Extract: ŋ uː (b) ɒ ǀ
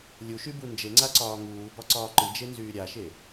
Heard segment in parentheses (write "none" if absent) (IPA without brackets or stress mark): b